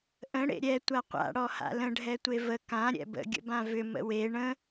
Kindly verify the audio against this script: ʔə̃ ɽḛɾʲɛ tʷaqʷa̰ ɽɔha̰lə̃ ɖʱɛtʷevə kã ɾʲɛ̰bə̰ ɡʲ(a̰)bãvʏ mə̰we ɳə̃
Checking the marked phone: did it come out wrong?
yes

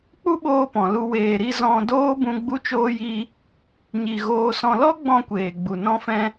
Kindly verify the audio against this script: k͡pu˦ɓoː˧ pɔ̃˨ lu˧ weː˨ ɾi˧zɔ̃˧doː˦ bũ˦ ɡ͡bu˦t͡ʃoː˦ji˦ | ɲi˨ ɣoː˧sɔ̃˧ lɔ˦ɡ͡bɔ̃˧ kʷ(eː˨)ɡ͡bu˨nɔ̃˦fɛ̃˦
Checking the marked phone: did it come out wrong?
no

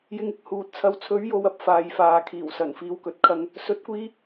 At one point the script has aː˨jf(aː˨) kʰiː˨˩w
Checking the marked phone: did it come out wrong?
no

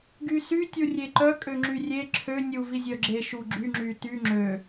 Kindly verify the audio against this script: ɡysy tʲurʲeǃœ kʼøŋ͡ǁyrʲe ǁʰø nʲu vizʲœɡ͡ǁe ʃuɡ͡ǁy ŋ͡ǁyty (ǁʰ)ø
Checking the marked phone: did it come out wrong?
yes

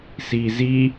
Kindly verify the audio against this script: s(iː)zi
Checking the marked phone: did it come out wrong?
no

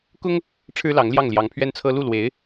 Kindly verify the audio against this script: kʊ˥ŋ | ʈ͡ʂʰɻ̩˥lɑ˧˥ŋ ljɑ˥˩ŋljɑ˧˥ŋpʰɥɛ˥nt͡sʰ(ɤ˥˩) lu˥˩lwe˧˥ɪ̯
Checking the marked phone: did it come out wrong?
yes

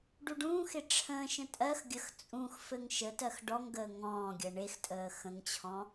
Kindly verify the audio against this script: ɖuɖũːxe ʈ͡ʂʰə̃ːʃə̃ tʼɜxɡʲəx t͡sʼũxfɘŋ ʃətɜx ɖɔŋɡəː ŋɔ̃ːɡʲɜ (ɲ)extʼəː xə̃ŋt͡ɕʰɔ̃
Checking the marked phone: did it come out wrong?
yes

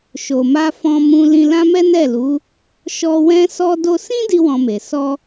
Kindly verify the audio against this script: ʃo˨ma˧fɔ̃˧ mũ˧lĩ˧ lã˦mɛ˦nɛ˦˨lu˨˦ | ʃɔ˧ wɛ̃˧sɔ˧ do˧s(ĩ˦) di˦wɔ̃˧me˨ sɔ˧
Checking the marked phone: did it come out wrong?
no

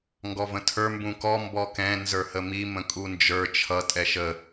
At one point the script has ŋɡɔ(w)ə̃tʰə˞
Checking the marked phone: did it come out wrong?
yes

